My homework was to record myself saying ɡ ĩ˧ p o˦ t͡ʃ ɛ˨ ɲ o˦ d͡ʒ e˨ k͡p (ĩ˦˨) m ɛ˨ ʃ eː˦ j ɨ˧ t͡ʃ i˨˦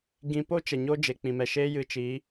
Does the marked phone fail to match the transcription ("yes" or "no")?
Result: yes